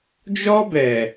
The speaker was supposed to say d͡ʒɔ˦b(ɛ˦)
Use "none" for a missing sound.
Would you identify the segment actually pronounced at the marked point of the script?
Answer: ɛ˨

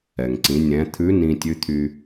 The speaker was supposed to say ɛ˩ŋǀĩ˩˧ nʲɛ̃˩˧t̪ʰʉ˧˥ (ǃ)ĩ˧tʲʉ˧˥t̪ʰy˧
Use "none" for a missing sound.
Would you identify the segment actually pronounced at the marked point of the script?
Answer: n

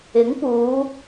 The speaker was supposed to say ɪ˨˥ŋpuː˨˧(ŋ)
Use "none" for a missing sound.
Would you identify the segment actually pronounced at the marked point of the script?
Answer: none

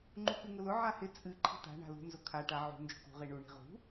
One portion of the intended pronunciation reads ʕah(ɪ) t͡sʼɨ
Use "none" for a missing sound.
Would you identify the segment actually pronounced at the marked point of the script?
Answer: ɪ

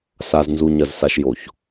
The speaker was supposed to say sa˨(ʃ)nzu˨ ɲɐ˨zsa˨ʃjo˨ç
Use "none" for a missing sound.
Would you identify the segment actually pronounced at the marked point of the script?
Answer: z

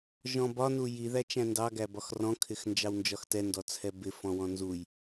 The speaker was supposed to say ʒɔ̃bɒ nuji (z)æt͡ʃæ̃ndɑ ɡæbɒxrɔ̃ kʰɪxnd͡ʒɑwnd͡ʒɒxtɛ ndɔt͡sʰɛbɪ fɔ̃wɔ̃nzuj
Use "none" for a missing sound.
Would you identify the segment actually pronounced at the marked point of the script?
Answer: ð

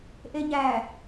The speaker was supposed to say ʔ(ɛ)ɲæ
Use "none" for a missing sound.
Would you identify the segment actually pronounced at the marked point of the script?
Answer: e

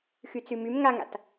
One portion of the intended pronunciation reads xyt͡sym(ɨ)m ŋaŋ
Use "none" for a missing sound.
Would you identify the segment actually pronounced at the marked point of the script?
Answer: y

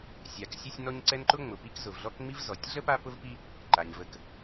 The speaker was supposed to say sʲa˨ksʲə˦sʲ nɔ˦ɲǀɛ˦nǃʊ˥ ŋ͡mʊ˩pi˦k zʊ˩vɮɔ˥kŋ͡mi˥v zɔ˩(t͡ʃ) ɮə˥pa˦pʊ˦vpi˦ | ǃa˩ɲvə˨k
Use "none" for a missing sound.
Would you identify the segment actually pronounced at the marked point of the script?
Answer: tʲ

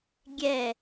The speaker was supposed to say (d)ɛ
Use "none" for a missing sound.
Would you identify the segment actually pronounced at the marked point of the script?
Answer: ɡʲ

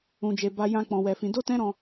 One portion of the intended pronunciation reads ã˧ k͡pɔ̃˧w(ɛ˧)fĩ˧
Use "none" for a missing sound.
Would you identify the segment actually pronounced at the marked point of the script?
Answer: ɛ˧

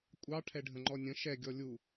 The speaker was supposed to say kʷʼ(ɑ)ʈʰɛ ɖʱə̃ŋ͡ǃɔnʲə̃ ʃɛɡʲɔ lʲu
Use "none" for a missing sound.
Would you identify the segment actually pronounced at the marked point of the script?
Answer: ɑ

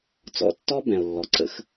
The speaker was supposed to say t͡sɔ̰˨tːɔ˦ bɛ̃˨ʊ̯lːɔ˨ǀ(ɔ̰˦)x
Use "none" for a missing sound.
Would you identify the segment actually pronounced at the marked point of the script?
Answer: ə̰˦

